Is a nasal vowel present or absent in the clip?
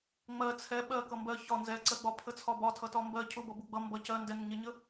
absent